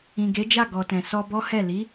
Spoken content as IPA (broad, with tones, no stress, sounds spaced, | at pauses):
ĩ˨ ɡ e˨˦ d͡ʒ a˦˨ ɡ ɔ˨ t ɛ̃˨ s ɔ˧ b ɔ˦ h ɛ˦˨ l i˨˦